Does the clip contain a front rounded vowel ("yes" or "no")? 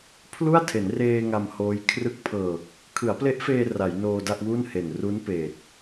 no